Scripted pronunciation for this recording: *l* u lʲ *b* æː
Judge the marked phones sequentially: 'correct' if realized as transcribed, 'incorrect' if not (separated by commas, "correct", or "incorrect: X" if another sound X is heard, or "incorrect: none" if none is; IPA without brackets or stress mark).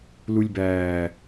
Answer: correct, correct